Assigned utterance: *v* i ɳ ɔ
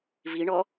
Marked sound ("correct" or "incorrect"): correct